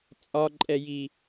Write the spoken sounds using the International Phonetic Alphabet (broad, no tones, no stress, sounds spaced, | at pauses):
t͡sʼ ɒ ǃʼ ɛ j i